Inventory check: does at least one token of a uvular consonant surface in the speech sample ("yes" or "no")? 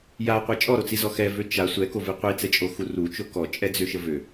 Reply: yes